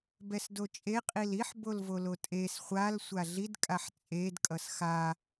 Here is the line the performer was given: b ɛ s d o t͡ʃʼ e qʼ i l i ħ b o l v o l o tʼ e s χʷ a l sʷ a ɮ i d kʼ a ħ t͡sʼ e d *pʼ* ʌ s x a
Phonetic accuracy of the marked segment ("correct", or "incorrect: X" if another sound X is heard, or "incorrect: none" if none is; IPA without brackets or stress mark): incorrect: kʼ